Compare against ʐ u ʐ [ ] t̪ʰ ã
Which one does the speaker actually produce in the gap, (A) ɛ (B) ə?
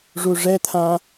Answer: A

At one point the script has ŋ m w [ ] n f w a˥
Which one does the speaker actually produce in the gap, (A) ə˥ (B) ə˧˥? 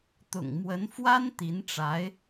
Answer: B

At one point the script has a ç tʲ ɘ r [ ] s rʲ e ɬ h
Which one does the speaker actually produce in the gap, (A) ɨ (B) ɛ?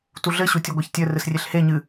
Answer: A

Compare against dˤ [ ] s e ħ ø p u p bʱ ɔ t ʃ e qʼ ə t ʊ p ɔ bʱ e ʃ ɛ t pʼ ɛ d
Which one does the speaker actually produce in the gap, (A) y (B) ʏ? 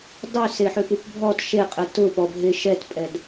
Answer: A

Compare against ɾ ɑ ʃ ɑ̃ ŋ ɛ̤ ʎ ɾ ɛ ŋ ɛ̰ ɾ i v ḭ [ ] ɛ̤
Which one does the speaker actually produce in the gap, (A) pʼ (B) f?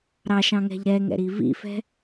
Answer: B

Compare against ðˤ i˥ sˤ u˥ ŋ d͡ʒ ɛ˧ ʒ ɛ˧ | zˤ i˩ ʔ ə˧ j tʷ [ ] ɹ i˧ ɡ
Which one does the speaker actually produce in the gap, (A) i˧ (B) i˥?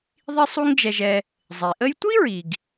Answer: B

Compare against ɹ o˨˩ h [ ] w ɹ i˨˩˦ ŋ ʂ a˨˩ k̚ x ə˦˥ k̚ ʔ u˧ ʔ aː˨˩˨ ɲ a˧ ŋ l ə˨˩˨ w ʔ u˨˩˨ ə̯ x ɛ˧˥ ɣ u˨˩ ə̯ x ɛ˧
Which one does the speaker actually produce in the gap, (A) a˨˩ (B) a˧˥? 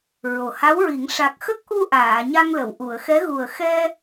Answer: B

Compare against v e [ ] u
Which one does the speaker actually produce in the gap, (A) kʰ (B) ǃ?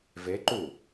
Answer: B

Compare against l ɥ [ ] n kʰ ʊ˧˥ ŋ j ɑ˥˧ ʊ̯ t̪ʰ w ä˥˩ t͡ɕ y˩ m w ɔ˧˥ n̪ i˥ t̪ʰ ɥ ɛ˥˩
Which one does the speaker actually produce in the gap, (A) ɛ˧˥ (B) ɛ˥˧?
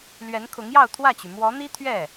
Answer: A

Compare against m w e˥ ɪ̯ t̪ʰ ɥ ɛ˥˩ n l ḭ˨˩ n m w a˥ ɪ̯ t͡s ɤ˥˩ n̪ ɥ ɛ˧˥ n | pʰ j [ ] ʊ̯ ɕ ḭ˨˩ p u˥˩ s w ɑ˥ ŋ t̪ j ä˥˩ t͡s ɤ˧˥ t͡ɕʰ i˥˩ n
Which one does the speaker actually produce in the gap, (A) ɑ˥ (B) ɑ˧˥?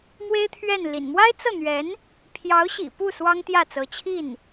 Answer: B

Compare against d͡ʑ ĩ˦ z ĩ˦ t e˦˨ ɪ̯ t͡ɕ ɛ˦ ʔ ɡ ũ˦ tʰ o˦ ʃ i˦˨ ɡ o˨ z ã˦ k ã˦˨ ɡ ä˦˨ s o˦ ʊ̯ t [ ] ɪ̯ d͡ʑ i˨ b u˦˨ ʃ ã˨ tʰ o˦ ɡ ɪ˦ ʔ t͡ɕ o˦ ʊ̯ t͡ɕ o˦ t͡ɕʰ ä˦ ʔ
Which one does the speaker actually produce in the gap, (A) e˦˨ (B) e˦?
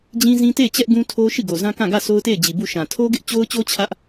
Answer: A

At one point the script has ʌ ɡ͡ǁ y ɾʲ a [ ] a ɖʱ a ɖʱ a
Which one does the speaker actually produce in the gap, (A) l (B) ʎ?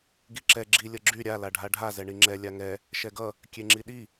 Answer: A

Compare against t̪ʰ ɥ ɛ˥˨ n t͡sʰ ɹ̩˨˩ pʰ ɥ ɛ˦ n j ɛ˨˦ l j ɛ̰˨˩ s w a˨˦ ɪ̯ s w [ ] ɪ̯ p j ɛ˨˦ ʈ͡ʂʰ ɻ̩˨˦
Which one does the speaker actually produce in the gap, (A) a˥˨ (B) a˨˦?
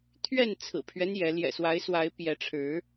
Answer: B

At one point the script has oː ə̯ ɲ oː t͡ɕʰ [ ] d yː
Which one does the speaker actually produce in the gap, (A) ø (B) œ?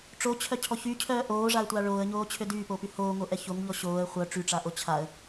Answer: A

